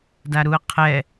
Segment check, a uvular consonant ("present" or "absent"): present